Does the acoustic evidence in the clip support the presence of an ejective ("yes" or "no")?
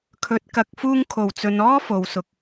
no